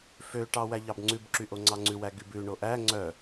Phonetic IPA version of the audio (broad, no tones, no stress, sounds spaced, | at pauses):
f ø ʈ ɑ w æ ʎ ɑ b ŋ͡ǀ ʉ b ǁ y ʔ o ŋ͡ǀ ɑ ŋ͡ǀ ʉ w æ ɡ y b ʉ ɳ o ʔ æ ŋ͡ǀ œ